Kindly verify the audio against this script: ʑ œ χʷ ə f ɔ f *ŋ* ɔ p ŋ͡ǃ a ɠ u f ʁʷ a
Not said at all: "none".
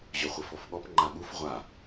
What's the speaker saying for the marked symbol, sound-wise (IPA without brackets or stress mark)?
ɠ